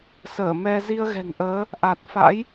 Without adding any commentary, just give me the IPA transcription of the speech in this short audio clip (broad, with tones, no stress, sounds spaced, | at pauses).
s əː˧˩ m ɛ˧ z i˧ ə̯ ɣ ɛ̤˨˩ ŋ ʔ əː˨˦ | ʔ a˨˩ t̚ f a̰˧˥ j